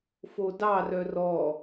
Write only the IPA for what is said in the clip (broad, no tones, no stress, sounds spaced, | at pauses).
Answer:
f o d ɑ r œ r ɔ